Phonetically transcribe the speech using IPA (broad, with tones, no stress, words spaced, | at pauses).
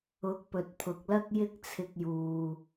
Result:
ʊ˨˥k̚pɵ˨t̚pʰʊ˨k̚lɐ˥k̚ jɪ˥k̚t͡sʰɪ˧k̚juː˨